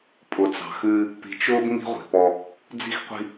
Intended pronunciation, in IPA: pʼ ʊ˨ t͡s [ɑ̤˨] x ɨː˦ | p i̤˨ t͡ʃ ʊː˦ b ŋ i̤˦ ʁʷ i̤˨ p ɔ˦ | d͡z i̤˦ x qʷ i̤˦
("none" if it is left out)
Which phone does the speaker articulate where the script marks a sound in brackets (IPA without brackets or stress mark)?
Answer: ɑ̤˨